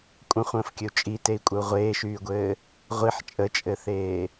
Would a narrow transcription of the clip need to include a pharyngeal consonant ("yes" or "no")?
yes